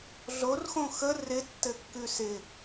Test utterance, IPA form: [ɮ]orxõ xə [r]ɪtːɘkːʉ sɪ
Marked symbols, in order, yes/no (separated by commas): yes, yes